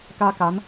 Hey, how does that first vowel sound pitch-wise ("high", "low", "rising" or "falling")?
high